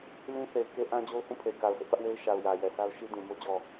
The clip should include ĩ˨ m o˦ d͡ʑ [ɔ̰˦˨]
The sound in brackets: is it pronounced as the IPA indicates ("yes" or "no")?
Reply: no